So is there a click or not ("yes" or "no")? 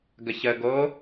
no